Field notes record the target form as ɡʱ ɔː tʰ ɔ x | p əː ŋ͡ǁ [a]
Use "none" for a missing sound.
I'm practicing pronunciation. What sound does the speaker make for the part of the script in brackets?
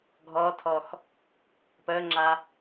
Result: a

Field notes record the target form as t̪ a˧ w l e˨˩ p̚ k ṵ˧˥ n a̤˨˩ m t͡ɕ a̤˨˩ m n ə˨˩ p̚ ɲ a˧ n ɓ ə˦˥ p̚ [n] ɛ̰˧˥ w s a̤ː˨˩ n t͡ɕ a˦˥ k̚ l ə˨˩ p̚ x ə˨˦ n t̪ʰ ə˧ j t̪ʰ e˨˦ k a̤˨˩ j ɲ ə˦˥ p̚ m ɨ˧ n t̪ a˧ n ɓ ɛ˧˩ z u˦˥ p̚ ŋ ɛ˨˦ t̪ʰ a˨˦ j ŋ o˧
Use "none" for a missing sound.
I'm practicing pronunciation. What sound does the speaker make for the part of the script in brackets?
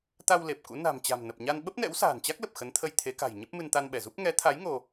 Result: n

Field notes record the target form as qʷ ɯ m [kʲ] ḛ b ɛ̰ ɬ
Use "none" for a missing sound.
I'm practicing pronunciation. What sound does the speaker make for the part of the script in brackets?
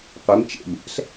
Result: t͡ʃ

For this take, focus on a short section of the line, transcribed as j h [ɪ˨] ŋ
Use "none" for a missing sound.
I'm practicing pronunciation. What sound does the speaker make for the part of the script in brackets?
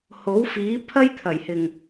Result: ɪ˨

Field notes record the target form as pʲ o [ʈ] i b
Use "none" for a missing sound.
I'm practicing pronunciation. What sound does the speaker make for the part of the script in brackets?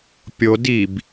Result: d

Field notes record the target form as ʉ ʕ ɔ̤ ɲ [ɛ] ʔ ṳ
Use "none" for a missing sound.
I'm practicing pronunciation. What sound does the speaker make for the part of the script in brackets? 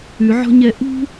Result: ɛ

